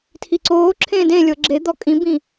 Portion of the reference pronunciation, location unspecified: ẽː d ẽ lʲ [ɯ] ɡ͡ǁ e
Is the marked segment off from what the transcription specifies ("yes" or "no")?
yes